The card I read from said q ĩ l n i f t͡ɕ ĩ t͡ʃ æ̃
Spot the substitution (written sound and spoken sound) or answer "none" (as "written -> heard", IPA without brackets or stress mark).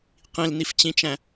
none